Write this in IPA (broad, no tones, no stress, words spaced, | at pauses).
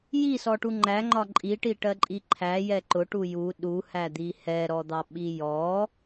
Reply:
jisɔʈu ŋ͡ǃæŋ͡ǃɒ ǃʼiʈiʈɜǃʼi ǃʰæjɛ ǃʊʈu ju ɗuhæd̪i hɛɾɔd̪ɑɓi jɔ